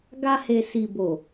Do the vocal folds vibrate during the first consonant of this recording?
yes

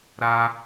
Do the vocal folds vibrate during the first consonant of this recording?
yes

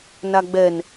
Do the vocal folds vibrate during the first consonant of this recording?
yes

